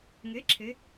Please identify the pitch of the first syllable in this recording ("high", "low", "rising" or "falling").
rising